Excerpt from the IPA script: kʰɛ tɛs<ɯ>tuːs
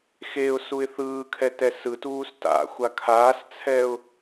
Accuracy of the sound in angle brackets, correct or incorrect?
correct